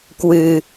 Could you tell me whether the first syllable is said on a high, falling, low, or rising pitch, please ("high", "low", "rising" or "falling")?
low